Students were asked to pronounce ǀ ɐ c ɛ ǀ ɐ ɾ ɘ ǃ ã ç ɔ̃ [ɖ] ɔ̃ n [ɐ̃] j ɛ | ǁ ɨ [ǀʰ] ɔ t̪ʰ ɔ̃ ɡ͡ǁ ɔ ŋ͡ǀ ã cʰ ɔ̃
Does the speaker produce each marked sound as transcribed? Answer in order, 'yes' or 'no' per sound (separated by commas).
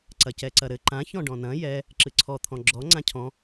yes, yes, yes